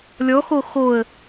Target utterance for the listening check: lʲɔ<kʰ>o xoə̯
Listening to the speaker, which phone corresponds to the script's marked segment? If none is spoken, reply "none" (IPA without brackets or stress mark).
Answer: x